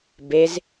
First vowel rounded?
no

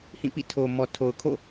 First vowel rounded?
no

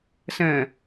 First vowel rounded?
no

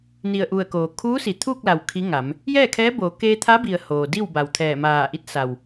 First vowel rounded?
no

